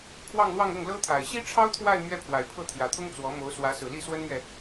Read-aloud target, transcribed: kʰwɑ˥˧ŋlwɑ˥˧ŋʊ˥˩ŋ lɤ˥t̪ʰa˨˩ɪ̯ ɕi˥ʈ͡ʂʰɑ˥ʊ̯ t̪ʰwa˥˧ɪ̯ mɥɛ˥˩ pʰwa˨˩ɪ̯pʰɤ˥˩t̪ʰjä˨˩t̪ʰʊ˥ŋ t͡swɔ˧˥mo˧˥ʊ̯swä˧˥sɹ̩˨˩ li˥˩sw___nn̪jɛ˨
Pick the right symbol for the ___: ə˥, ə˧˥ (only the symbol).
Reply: ə˥